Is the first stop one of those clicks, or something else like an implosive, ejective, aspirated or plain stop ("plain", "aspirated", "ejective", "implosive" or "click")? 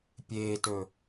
plain